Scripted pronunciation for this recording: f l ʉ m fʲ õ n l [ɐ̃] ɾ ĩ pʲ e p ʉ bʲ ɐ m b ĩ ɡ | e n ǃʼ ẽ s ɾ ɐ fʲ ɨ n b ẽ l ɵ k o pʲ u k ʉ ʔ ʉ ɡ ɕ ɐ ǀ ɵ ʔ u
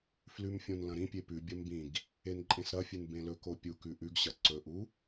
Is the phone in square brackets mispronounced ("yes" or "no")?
no